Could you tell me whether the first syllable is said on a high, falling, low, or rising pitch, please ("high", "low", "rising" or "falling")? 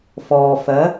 low